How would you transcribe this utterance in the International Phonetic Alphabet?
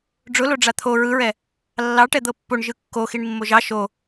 ɖ͡ʐʊlo ɖ͡ʐat̪ʰo ɹɯɹɛ | lːɑʈɛ d̪ɤpːoɳ ʒɯkːoxiɳ mːoʒɑ ʃo

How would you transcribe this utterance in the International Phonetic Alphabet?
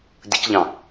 dʲəcʎɑ̃

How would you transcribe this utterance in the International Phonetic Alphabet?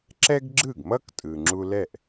ǁɛ˥ɡ ɡ͡ǁɯ˥˩ɡmʌ˥ktʼɯ˩ ŋ͡ǁu˧lɛ˥˩ʔ

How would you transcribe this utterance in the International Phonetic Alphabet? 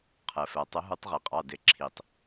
qʰɜ˩fɜ˩ tˤʊ˨˩˦ɦu˨˩˦tˤʁi˩qʼɑ˩˧˩ dɪ˨˩˦ ǁʰi˩tˤ

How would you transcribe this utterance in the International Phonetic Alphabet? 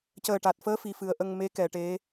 cəː˨˩ʈa˨˩t̚fəː˧˥ fi˨˩fɨ˨˩˦ə̯ʔə˧ŋ me˧˥kɛ˨˩˨ ʈe˧˥

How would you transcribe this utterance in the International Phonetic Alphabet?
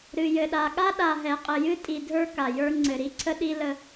ɾɨ˨ jɘ˨ɗa˨ɠa˦ ɗa˨ɦɛ˨qʼɘ˨ jɨ˦tʼi˨dʱə˞˦ ka˨jə˞˦ ŋ͡ǀɘ˨ɾi˦ǀʰə˦ ɗi˦lə˦

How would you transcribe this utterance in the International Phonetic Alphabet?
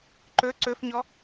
ǃɵ ǀɵfɲɔ

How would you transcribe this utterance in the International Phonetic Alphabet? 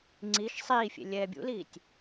ŋ͡ǀiʃ sˤiːfʲḛ lʲɛːbʲṵliːtʲ

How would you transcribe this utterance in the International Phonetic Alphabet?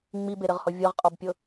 ŋ͡mibeɾɘʁhɔ vʲɤʁqʼɔbpʲɤ

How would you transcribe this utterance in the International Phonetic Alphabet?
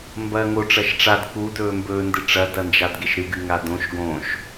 mbɐːŋo ʈ͡ʂɐʃʈ͡ʂad kudɵːmbɵːndɨ ʈ͡ʂɐdɐnd͡ʒadɡeʃ ɾɨɡɨ ŋadõʃ ɡõʃ

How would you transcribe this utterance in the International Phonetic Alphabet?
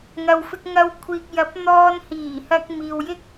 ŋɐ˨wfɪ˧k̚ ŋɐ˧w kʷʰiː˨k̚jɐ˨˥p̚ n̪ɔː˧n hiː˨˩hɐ˧k̚ miː˧wjɪ˥k̚

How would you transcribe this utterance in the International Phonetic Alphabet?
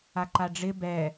aǃaɖ͡ʐɪ bɛ

